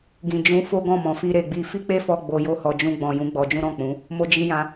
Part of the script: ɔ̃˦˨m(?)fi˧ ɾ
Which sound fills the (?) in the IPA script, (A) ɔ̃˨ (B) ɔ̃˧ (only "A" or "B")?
A